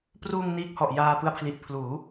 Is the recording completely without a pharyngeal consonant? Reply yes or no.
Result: yes